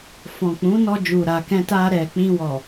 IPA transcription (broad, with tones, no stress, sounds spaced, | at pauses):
f ɔ̃˨ k͡p ũ˨˦ n ɔ˧ d͡ʒ u˨ ɾ a˨ k ɛ̃˧ t a˧ ɾ ɛ˨ k͡p ĩ˧ w ɔ˨